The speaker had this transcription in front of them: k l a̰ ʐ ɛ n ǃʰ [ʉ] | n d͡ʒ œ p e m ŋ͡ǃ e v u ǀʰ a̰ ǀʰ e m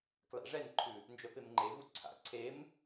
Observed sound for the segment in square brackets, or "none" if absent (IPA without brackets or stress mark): ʉ